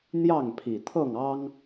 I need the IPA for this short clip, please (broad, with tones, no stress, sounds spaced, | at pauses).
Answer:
n̪ j ɑ˥˨ ŋ pʰ i˨˩ t̪ʰ ɤ˥˨ ŋ ɑ˦ ŋ